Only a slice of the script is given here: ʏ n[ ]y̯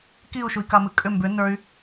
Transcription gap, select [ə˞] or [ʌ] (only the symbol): ə˞